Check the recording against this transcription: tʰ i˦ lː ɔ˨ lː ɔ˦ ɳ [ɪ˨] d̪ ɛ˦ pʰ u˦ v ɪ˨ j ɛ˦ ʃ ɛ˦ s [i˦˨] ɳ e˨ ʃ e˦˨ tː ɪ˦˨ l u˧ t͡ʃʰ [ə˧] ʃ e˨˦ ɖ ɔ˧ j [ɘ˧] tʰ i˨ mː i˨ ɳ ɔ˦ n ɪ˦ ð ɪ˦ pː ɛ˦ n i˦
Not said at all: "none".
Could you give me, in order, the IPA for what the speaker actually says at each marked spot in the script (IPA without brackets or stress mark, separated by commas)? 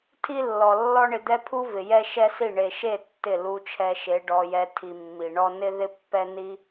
ɪ˧, i˦˨, ɛ˧, ɛ˧